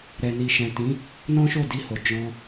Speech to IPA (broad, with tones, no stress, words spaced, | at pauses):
ɾɛ˨ni˨ ʃɛ̃˨tĩ˨˦ | nɔ̃˦ʃo˦˨di˧ho˨ d͡ʒɔ̃˧